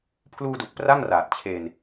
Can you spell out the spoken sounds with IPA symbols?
pʰ l uː˧ d u˨˩ k̚ p r a˥˩ ŋ r aː˨˩ t̚ t͡ɕʰ eː˧ n

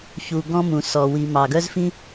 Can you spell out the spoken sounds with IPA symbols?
ç u˩ ɡ ɔ̃˥ m ũ˩ s ɔ˩ w i˩ m ɑ˩ ɡ œ˥ z f ĩ˥

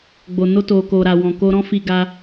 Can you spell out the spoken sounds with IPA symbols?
ɡ͡b o˨ n o˧ t o˨ k o˨ ɾ a˨ w ɔ̃˨ k o˧ ɾ ɔ̃˦ f i˧ ɡ a˧

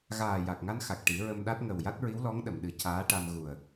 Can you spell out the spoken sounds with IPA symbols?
ɣ aː˨˩ j a˨˩ k̚ ŋ a˧ n x a˨˩ k̚ ʈ i˨˩˦ ɹ ə˧ m ɗ a˦˥ t̚ ŋ ə˨˩ w j a˦˥ t̚ ɹ i˧˥ w l ɔ˧˥ ŋ ɗ ə˨˩˨ m ɗ ɨ˨˩˦ c aː˧˥ ʈ a˧ m ɣ u˨˩ ə̯

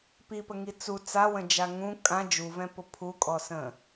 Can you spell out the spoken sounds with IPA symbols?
p i p ə ŋ i t͡s u t͡s a w ə̃ d͡ʒ a ŋ ũ kʼ ã d͡ʒ u v ɛ̃ p ʊ pʰ u kʼ ɔ s ə̃

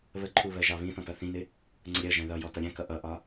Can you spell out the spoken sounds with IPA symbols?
β ə ǃʰ u β ɜ ʒ ɑ β ĩ θ ɔ̃ t ʌ θ ĩ n ɪ | ŋ͡ǀ ə ɾʲ ɜ ʒ æ̃ ð ʌ j ɔ t ʌ ɾʲ æ̃ k ʌ ʔ ʌ ʔ ɒ

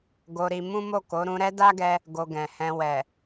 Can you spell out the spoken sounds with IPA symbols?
ɡ o˧ ɾ i˧ m ũ˦ m o˦˨ k o˨˦ ɾ ũ˧ ɾ ɛ˦ d a˦ ɡ ɛ˧ | ɡ o˧ ɡ ɛ̃˨ h ɛ̃˧ w ɛ˨

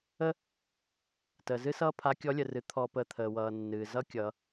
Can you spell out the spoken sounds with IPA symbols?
ə˥ | t əː˩ z ɨ˥ s ʌː˥ pʰ a˧˥ kʲ ɔ˧˥ lʲ ə˩ r ɨ˩˧ t̪ʰ ɔ˧ p əː˧ t̪ʰ əː˩ w ʌː˩ nː ɨː˩ z ʌ˥ kʲ ʌː˩˧

